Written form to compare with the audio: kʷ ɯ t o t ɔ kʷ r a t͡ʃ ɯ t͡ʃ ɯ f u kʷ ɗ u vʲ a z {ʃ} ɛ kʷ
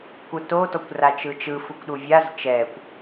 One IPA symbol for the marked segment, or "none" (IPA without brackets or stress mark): t͡ʃ